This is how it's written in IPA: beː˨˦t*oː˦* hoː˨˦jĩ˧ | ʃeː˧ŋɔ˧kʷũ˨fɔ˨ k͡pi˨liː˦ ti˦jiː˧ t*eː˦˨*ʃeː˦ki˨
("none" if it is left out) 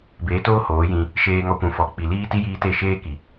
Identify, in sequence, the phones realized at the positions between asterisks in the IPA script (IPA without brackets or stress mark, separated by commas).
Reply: oː˦, e˦˨